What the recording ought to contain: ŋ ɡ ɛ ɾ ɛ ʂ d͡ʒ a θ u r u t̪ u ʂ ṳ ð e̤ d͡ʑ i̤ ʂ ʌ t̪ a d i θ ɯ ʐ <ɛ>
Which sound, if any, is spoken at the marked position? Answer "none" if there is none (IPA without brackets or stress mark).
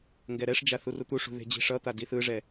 ɛ